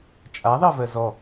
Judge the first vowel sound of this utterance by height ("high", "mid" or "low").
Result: low